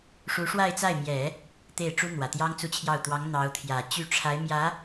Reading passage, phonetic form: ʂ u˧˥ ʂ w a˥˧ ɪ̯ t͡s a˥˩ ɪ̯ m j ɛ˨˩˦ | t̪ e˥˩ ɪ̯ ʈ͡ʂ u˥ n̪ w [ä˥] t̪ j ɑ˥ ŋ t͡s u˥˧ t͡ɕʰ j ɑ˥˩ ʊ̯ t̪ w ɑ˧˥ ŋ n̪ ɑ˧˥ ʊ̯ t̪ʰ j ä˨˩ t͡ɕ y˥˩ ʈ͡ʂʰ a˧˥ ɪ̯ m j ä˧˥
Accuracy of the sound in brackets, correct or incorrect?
incorrect